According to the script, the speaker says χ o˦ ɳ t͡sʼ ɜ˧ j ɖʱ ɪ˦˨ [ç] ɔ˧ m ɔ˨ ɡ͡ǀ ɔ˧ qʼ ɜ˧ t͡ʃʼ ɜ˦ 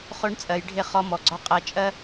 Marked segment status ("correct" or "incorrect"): incorrect